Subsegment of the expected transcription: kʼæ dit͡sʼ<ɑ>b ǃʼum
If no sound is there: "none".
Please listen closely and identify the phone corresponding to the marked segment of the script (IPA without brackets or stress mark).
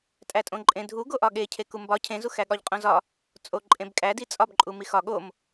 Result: ɒ